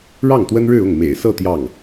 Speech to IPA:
ɻɑ˥˩ŋt̪wə˥nɻɻ̩˥˧ʊ˥˩ŋ mḛ˨˩ɪ̯sɤ˥˧ t̪jɑ˥˩ŋ

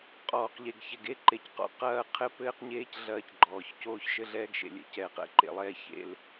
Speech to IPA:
qʼɔː˨qʎe˨ɡçɛ˨ɡe˦ ǃe˨cqɔ̰˨ qɐː˦˨qʰɘ˦ pɘː˦qɲeː˦c ɮɐː˦cɡ͡ǃɔː˨ç coː˦ç ʃɘ˦ɮɛː˦ɡʃḛ˨lʲɛ̰˨ cɛː˨q ɛ̰˨˦ǃḛ˨lˠɛː˦ çḛ˦˨l

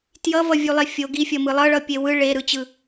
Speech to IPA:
tjʌvʌvʲulˠe fʲo ɡifʲʌmɯ lˠʌɭʌpʲe wɯ ɭeɾɯt͡ɕɯ

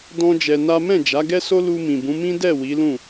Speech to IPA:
dɔ̃˦d͡ʒɛ˧na˦ mɛ̃˦˨d͡ʒa˨˦ɡɛ˦so˦ lu˧mĩ˨bũ˨˦ mĩ˦dɛ˦˨ wi˨˦lũ˦˨

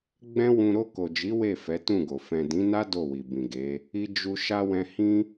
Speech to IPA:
ɡ͡bɛ̃˦wũ˧ ɾo˧ko˨d͡ʒi˨˦ we˦˨ fɛ˨˦tũ˦˨ɡo˨ fɛ̃˨dĩ˨˦na˦ do˦˨wi˨bĩ˨ɡe˨˦ | i˧d͡ʒu˧ ʃa˧ wɛ̃˧hĩ˦

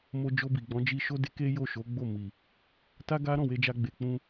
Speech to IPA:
mo˧d͡ʒo˧bi˨ɡ͡bɔ̃˨˦ d͡ʒi˧ʃo˦ de˦ke˦jo˦˨ ʃo˨˦ɡ͡bo˦˨ mi˨ | ta˦ɡa˦ ɾɔ̃˦˨we˧d͡ʒa˧ɡ͡be˨ k͡pũ˧

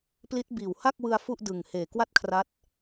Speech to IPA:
pli˦˥t̚biː˨˩w ha˥˩k̚wɯ˧a̯ fu˥˩ʔdɯ˨˩ŋheː˨˩ kwa˥˩t̚kʰra˦˥t̚

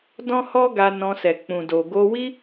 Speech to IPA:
dɔ̃˦hɔ˦ɡa˧ nɔ̃˧sɛ˨k͡pũ˨do˨ ɡo˧wi˦

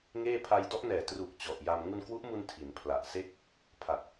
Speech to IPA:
ŋeː˥˩ pʰa˧j dɔ˦˥ʔnɛː˨˩truː˨˩k̚ t͡ɕɔ˨˩ʔja˧m ŋu˧nkwu˦˥ʔmu˧n tʰi˩˦npʰla˨˩ʔse˥˩k̚ | pʰa˨˩t̚

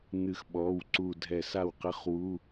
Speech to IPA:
n̪ɨ˧˩xɓɔ˩˧˩w ǀu˧˩dʱɛ˧˩ sa˥˩wqɘ˧˥˧χwu˧˥˧

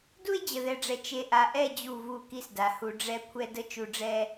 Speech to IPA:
du˦e̯d͡ʑə˨ðɛ˨ɖ͡ʐɛ˨ t͡ʃe˨ʔa˨ʔɛ˦˨ d͡ʑu˦˨vu˦˨ki˦sda˨ hu˨ɖ͡ʐɛ˦˨ kʷʰɛ˦də˦ t͡ʃu˨ɖ͡ʐɛ˦

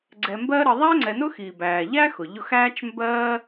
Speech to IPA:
ɡ͡ǀɛ˨mbɜ˦ ɾə˨ðˤæ˥ŋ͡ǀɛ˨nʊ˥ xi˩bæː˩ʎæː˥x ʊ˩ʎʊ˦xæː˥t͡ʃ mbɜː˥

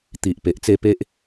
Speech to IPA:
t̪i˨ʔ pe˨ʔt͡se˥˧ pe˦ʔ

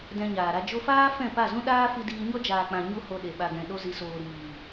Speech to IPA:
dɛ̃˧ɲaː˨ɾa˧ d͡ʒo˧faː˦ fɛ̃˦˨pa˦˨zũ˦ ɗaː˦fi˧ diː˧ɲɔ˦ d͡ʒaː˨k͡pã˨ ɲu˦ho˧ɗe˨ ɓa˨ɡɛ̃˨ɗo˧ zi˨soː˨ ɾiː˨

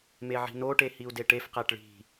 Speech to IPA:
meʕi̤noʈe hiu̯deʈefqæʈ ɭi̤

